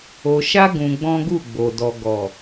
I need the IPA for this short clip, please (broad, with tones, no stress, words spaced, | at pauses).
o˧ ʃa˦ ɡũ˧ɡ͡bɔ̃˦ɡu˦˨ɡ͡bo˨ dɔ˨ɡɔ˨